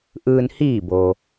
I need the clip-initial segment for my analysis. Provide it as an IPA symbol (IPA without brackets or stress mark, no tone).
ʔ